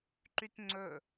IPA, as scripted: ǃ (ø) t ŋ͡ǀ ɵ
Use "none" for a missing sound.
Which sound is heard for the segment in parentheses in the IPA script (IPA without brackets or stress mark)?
y